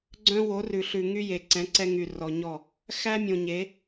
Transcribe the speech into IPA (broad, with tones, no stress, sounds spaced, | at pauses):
ɡ͡ǀ œ̃˦ w o˨˦ r ʉ˨ ɬ ʉ˨ ŋ y˦ j e˨ ǀ ɛ̃˨˦ ǀ ɛ˦ ŋ y˨ r ɔ˨ ɲ ɔ˦˨ | x æ˦ mʲ õ˨ ɲ e˨˦